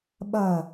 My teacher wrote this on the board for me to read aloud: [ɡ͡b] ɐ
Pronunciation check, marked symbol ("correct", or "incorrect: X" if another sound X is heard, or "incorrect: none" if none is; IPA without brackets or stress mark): incorrect: ɓ